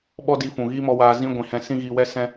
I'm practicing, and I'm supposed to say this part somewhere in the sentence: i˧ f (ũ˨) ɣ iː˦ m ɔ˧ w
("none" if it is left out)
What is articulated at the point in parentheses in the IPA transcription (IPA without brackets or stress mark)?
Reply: ũ˨